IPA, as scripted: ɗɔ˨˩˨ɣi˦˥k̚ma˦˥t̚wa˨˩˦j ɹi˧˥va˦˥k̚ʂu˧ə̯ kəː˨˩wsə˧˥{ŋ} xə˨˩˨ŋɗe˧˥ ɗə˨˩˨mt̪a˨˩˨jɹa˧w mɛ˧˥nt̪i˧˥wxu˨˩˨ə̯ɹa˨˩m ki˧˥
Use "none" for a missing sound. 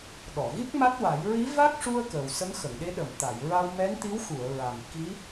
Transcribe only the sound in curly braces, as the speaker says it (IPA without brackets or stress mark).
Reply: ŋ